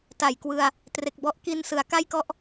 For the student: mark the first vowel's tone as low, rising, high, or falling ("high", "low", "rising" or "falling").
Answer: low